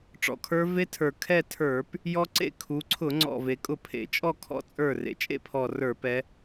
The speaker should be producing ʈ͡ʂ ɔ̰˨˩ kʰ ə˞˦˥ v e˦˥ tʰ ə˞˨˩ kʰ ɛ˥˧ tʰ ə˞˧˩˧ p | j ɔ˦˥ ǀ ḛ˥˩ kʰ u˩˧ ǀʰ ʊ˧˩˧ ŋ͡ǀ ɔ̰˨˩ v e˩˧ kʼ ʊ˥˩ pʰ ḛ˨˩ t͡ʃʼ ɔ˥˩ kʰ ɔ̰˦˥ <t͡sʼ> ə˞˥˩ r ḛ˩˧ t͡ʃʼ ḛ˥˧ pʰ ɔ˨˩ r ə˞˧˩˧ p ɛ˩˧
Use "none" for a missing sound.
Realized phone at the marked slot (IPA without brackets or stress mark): t͡sʼ